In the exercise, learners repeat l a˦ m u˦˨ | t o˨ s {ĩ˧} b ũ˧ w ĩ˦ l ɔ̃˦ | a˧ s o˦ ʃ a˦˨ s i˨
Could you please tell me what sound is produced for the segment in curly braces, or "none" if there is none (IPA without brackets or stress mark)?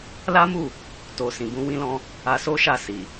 ĩ˨